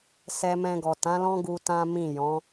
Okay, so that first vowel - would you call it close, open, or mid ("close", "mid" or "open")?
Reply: mid